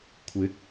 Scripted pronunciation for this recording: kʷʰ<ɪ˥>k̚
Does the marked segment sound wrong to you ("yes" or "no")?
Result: yes